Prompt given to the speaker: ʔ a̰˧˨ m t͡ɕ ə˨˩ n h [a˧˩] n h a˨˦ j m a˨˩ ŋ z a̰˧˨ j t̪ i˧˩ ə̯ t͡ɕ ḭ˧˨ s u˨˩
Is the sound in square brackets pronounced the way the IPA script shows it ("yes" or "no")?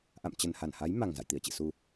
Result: yes